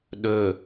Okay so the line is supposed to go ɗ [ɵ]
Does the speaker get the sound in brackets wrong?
no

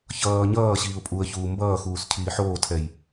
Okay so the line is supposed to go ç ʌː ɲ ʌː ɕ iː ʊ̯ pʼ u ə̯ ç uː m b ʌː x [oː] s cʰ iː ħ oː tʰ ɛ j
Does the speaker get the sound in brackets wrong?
yes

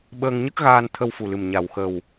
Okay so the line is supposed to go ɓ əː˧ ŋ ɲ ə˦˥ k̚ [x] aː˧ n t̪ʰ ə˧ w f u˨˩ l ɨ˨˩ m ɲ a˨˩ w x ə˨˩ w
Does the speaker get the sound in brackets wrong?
yes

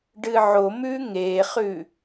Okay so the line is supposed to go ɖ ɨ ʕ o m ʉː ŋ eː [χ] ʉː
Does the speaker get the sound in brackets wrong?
no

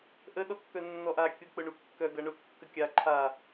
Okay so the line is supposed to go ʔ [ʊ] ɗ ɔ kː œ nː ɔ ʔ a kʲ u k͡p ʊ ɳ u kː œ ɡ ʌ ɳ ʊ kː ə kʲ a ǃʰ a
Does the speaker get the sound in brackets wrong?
yes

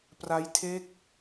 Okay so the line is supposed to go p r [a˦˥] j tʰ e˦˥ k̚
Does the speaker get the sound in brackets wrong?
no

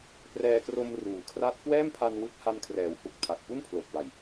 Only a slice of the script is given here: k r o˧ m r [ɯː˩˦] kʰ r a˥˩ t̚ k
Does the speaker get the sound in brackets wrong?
yes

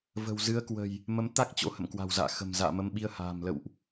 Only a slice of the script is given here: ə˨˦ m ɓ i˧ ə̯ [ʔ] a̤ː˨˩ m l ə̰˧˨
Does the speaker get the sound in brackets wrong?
yes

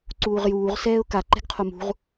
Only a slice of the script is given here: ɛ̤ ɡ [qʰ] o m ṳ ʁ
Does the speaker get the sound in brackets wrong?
no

